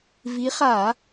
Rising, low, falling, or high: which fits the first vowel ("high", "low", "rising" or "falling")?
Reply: rising